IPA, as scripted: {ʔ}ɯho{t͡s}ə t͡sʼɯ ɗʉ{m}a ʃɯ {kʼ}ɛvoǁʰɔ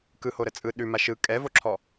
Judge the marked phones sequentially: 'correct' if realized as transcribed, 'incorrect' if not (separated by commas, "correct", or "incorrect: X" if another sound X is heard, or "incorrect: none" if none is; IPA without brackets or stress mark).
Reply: incorrect: k, incorrect: ɾ, correct, correct